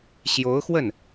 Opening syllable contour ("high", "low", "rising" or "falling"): rising